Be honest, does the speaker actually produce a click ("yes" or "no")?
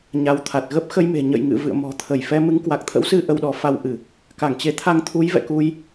no